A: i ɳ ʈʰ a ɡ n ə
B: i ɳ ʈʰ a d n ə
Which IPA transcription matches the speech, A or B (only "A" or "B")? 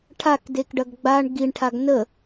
A